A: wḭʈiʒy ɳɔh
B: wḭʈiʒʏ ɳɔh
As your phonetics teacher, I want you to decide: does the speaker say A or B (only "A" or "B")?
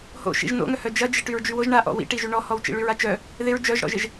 A